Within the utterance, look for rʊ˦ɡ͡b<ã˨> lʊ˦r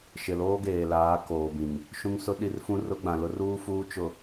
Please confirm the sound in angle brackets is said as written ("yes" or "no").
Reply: yes